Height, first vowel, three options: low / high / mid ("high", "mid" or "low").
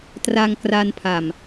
low